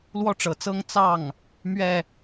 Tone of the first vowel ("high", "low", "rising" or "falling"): high